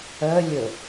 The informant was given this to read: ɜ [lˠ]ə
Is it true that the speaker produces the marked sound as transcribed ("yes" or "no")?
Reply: no